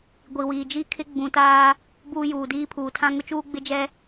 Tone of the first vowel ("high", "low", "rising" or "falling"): low